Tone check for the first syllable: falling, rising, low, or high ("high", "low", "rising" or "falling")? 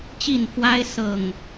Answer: falling